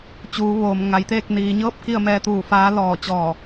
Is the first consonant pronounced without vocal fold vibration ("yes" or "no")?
yes